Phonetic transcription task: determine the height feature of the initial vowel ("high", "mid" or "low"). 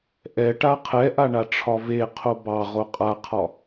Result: mid